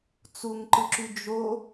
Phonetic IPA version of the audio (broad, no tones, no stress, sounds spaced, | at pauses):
t͡s u ŋ ǃ ɯ ǁ y d͡ʒ o